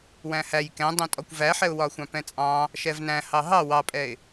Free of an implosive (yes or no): yes